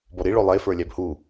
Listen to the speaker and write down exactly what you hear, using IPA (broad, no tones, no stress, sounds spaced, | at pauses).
b ɔ ɾ i ɭ o lˠ e f ə˞ lʲ æ b h u